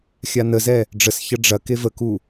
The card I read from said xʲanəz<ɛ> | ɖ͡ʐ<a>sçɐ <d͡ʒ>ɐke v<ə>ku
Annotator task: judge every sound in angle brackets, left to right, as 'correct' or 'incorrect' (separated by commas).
correct, incorrect, incorrect, correct